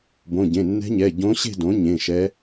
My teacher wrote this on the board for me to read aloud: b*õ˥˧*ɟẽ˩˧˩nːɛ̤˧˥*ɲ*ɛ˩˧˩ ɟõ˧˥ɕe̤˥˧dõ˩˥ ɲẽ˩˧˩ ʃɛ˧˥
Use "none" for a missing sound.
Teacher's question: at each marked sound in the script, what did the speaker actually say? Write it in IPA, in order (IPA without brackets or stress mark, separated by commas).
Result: õ˩˧˩, ɲ